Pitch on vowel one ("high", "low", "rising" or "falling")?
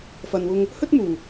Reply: low